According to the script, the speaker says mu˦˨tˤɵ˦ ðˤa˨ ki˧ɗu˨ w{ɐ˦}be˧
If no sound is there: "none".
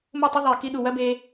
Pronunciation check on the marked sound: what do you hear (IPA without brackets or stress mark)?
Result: ɐ˦